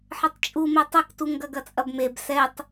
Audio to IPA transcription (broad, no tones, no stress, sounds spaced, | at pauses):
ħ ɘ tˤ t͡ʃʼ u m e tˤ ɘ k t u ŋ ɡ ɐ ɡ ɐ t͡sʼ ɐ b m e b s ɛ tˤ